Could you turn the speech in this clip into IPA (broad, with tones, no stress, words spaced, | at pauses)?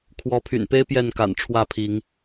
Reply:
kʰwɔ˨˦pʰy̰˨˩n pe˦ɪ̯ pjɛ˥˨nka̰˨˩n ʈ͡ʂʰwä˥˨pʰi˨˦ŋ